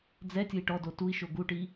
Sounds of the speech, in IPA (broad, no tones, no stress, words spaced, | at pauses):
d͡zɛtʲʊi̯ ʈɔdo tui̯ʃo ɡuʈi